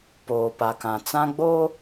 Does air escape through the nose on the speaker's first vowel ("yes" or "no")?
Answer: no